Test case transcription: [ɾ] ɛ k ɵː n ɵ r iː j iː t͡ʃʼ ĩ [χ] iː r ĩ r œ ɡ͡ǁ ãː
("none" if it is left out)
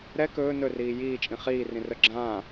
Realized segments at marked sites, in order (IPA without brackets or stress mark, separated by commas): ɾ, χ